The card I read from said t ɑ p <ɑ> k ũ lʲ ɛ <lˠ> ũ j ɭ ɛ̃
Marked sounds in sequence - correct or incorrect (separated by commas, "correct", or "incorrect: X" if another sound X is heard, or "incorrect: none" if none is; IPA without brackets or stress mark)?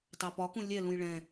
incorrect: ɒ, incorrect: l